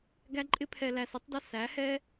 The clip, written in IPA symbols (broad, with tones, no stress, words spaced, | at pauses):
ɡæ˦ǃʼɪ˦ pʰɛ˨læ˨s ɪ˦tˤdʌ˦ sæ˨˦hɛ˦